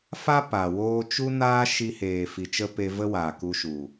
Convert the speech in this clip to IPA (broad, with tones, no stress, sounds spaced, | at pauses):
f a˦ p a˨ w oː˧ t͡ʃ u˦ n aː˦ ʃ i˧ h eː˨ f i˨ t͡ʃ ə˧ p e˧ v ə˦ w aː˨ k u˧ ʃ u˨